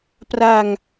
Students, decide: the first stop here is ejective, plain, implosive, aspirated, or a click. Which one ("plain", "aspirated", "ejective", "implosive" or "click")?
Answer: plain